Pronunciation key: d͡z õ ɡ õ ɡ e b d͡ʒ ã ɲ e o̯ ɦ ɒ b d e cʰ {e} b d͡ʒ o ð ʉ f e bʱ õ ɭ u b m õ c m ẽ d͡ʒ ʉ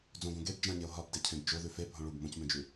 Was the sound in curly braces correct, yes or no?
no